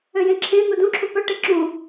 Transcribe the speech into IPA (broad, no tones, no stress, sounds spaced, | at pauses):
ø j ẽ ǁʰ ẽ n̪ u d ũ ǁʰ u p œ ʈ e ǁ ũ